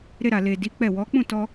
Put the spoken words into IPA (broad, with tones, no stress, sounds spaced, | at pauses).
ɾ e˧ ɾ a˨ l e˨ d i˨˦ k͡p ɛ˦˨ w ɔ˨˦ k͡p ũ˦˨ t ɔ˧